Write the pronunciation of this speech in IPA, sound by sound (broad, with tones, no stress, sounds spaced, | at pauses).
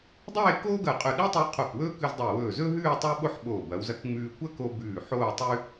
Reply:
dˤ eː˥˧ k oː˥ ɡ ɐ˧˩ qʼ ɵ˧˩ ɗ i˥ tˤ u˧ qʰ o˧˩ k w ɵː˥ k ʉ˧ z dˤ e˧˩ w ɵː˧˩ z ɵ˥ ɦ ʉː˥˧ tˤ u˥ ɓ o˥ ħ ɓ oː˧˩ b ɐ˩˧ w z ɐ˧ k ŋ͡m ʉː˧ kʷ ɐ˥ k o˧ b ʉː˧˩ ħ oː˥˧ tˤ ʉ˥